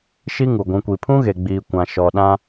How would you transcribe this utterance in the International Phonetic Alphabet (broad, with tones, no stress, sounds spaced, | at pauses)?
ʃ i˦ ŋ u˨ ɡʷ ũ˨ kʷ i˨ pʰ ũ˦ ɣ e˨ ɡ͡b iː˨ kʷ ã˨ ʃ ɔ˨ ɗ ã˦